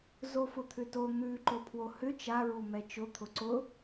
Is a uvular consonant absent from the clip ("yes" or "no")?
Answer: yes